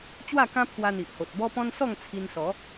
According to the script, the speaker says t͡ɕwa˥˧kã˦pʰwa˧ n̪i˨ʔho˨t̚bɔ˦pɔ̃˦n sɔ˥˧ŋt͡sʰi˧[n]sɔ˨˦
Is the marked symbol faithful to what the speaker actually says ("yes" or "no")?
yes